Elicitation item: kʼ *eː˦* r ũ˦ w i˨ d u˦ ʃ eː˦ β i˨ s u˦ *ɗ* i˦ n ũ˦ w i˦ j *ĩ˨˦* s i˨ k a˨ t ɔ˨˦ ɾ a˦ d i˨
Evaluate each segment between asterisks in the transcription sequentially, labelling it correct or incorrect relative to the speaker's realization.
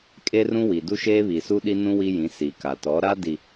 incorrect: e˦, correct, correct

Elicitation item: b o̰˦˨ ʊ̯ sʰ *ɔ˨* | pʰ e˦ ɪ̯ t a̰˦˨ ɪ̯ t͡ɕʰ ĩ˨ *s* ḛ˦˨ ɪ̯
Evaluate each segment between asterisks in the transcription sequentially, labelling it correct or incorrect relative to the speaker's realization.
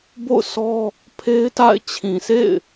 incorrect: ɔ˦, correct

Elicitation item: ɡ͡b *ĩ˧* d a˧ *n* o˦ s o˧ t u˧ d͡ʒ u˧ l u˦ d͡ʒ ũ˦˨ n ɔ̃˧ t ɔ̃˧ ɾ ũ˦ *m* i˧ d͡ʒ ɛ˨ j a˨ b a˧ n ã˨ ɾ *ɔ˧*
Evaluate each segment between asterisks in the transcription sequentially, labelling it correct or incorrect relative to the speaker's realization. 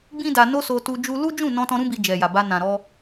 incorrect: ĩ˦, correct, incorrect: b, correct

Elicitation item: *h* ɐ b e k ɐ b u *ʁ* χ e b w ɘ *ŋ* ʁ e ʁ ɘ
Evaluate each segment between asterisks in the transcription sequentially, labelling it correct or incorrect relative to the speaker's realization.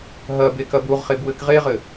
incorrect: ɦ, correct, incorrect: k

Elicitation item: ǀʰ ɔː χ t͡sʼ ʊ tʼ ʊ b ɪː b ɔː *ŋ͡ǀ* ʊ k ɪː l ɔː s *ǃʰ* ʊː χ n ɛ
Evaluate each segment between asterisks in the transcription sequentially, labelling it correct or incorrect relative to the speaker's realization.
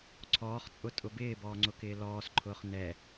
correct, correct

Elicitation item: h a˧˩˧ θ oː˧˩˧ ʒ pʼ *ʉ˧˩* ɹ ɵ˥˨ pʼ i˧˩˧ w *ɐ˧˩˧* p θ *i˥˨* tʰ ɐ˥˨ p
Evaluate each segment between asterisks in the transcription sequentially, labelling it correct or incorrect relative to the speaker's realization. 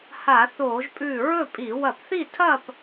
correct, correct, correct

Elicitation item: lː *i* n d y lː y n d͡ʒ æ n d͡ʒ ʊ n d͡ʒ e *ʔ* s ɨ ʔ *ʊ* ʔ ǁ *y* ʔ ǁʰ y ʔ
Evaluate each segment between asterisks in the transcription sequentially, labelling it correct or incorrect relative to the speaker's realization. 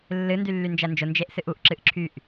incorrect: ɨ, correct, incorrect: u, incorrect: ɨ

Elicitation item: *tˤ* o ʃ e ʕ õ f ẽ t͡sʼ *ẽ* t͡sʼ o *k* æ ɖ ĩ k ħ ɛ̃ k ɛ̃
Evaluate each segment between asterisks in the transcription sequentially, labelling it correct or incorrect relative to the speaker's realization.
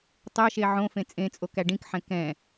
correct, correct, correct

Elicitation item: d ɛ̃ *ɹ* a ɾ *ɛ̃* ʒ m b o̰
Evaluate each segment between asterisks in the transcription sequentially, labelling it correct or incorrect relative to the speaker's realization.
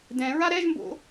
correct, incorrect: ɛ

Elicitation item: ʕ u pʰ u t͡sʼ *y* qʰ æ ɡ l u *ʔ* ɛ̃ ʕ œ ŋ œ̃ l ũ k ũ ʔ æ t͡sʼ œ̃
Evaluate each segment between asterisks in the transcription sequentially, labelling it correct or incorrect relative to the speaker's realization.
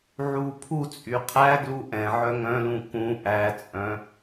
correct, correct

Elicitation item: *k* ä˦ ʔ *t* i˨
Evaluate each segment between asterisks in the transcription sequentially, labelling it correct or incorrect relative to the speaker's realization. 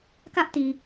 correct, correct

